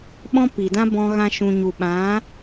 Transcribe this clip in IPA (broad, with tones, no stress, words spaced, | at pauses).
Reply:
ɓɔ̃˦pi˨dã˦bɔ̃˧ ɣã˧ʃũ˨ɲu˨ ɓã˨˦